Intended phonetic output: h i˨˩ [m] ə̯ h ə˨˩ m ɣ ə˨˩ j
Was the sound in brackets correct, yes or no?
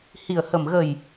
no